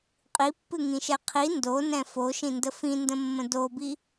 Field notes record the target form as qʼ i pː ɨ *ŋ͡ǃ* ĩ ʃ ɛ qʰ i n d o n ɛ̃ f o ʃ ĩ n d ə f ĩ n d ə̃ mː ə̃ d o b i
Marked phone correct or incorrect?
incorrect